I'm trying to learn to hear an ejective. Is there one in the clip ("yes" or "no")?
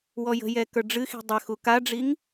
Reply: no